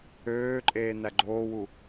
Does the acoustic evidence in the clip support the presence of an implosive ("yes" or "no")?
no